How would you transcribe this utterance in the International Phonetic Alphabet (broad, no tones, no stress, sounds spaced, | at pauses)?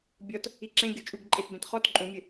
bʲ ɔ t | i ǁ ẽ ɡʲ o t͡ʃʼ u ɡ ǃʼ e t b ẽ t χ ɔ t ǃʼ ũ mʲ ɘ